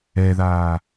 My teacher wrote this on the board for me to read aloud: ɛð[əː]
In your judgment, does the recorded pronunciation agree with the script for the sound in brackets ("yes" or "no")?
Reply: no